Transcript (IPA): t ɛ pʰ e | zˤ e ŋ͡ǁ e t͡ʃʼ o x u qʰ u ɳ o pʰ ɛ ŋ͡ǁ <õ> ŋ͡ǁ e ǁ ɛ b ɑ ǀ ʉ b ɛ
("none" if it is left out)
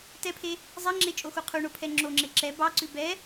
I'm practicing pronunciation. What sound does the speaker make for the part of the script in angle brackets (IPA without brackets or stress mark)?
o